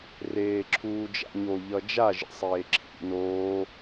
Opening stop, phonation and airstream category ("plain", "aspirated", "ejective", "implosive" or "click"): click